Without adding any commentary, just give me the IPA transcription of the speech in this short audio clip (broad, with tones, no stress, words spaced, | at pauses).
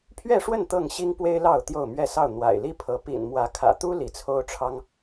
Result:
pʰɥɛ˥˨ʂwə˥˨n t̪ɤ˥˨ŋɕi˦ŋpwe˦ɪ̯ lɑ˥˨ʊ̯t̪jo˥˨ʊ̯mɥɛ˥˨ sɑ˥˨ʊ̯ n̪wa̰˨˩ɪ̯li˦pʰɤ˨˦ pḭ˨˩nmwä˨˦kʰä̰˨˩t̪u˦ li˨˦t͡sʰo˦ʊ̯ʈ͡ʂʰɑ˦ŋ